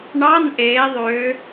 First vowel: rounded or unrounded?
unrounded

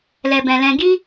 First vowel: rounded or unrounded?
unrounded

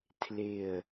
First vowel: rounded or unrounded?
unrounded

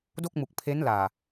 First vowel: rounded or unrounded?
rounded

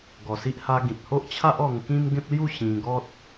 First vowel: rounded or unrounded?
rounded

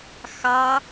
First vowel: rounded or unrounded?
unrounded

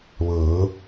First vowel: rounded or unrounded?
unrounded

